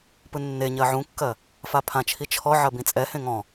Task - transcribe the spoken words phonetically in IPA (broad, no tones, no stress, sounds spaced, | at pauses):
p ɯ nː e ɲ ɜ ʕ ũ kː ɜ | f a pʰ ã t͡ʃʰ i t͡ʃʰ ɔ ʕ ɜ b ĩ t͡sʼ ɛ h ẽ ŋ ɔ̃